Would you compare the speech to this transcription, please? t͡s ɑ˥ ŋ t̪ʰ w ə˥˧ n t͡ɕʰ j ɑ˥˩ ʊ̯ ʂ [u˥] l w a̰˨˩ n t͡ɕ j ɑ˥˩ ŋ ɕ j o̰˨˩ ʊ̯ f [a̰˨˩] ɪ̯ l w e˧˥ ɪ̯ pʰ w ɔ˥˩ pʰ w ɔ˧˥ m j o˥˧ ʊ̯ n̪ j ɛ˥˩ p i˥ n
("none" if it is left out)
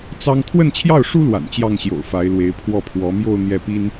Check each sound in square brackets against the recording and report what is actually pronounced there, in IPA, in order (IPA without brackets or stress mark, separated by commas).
u˥, a˧˥